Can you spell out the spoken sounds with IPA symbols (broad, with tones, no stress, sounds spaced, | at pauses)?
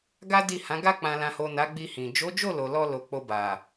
ɡ a˦ d i˦˨ h ã˨˦ ɡ a˧ k͡p ã˨ l ã˨ h o˨ n a˨˦ ɡ͡b i˧ h ĩ˨ d͡ʒ o˨˦ d͡ʒ o˦˨ l o˨ l ɔ˧ l o˨ k͡p o˧ b a˨